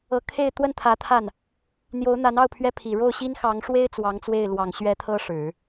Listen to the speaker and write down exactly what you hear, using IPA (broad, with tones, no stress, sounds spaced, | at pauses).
ɤ˧˥ kʰ e˥˧ ɪ̯ t̪ w ə˥˩ n t̪ʰ ä˧˥ t̪ʰ a˥˩ n | n̪ j o˧˥ ʊ̯ n̪ a˧˥ n ɑ˥˩ ʊ̯ pʰ ɥ ɛ˥ pʰ i˨˩ ɻ o˥˩ ʊ̯ ɕ i˥ n x ɑ˧˥ ŋ ʂ w e˥ ɪ̯ t͡s w ɑ˧˥ ŋ t͡s w e˥˩ ɪ̯ l w ɑ˨˩ ŋ ɕ ɥ ɛ˧˥ t̪ʰ ɤ˥ ʂ ɻ̩˨˩˦